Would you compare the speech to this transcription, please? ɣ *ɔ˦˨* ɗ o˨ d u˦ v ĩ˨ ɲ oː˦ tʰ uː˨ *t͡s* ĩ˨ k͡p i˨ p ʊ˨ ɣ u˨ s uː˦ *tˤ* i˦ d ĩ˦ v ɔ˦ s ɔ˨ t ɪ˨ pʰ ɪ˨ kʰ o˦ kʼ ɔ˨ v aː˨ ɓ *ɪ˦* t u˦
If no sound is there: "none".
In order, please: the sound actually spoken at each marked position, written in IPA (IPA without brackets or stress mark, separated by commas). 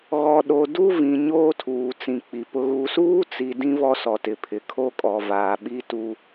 ɔ˨, t͡s, t͡s, i˦